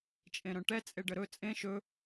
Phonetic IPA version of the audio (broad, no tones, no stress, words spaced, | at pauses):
t͡ʃʼẽɾœ̃ʈɛ t͡sʼeɖəɾɵ t͡sʼẽ ʃɵ